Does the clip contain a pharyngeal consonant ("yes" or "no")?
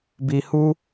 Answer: no